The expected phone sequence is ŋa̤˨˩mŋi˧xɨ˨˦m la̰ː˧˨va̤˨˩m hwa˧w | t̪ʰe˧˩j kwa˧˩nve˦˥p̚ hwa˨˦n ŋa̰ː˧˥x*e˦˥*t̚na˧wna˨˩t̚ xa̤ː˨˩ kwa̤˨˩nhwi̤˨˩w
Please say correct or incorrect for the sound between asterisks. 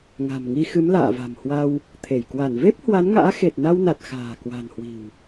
incorrect